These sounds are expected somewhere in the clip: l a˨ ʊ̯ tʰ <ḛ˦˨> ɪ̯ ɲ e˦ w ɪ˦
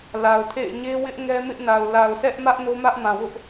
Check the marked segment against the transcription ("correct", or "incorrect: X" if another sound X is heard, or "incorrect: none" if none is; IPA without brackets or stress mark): correct